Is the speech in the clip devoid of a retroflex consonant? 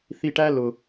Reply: no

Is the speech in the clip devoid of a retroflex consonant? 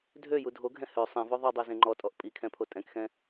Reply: yes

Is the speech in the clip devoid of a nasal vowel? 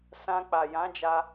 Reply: no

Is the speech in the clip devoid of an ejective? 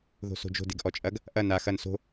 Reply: no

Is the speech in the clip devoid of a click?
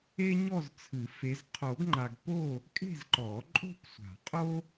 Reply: no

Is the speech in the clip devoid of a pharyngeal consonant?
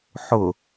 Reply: no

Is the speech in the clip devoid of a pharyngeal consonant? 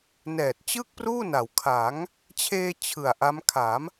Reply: yes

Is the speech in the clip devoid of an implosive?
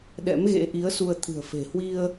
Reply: no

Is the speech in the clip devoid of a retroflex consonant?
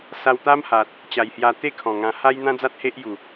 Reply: yes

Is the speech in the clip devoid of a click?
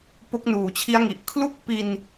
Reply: yes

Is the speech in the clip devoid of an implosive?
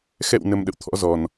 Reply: no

